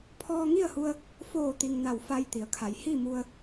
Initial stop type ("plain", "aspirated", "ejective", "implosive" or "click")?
aspirated